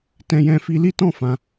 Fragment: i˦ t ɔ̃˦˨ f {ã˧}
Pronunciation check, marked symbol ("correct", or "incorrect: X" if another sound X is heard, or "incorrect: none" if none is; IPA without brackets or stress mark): correct